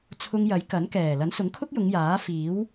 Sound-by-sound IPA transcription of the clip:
t͡sʰ ʊ˧ ŋ j ɐ˨˥ j k ɐ˨˥ n k ɛː˨˩ l ɐ˨˥ n s ʊ˨˥ ŋ kʰ ʊ˥ k̚ j ʊ˨˧ ŋ j aː˨˥ f iː˨˥ w

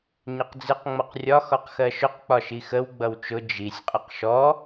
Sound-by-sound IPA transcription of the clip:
ɲ ɪ q d͡z ɪ q ŋ͡m ʌ q rʲ ɒ x ɔ q x ɜ ʃ ʊ q k͡p ɒ ʃ i x ə w ɡ͡b ʌ w t͡ʃ ʊ d͡ʒ i sʲ qʼ ə q ʃ ɔ

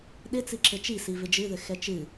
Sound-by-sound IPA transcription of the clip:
ɗ ɪ t͡s i ǁ ɘ t͡ʃ i s i v ɪ d͡ʒ ɨ ð ɘ x ɛ t͡ʃ ɨ

